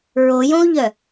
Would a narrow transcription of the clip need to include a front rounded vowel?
yes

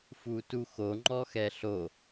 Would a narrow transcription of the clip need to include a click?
yes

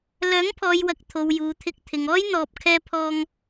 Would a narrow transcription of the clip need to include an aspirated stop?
yes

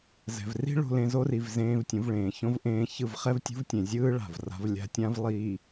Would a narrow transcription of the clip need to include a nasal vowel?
yes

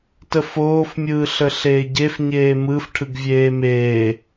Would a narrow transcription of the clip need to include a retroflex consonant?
yes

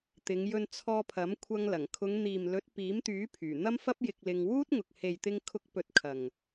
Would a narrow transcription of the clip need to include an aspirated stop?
yes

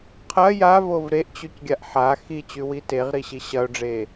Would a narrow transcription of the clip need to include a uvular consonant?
yes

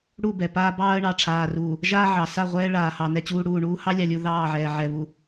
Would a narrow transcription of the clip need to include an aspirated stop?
yes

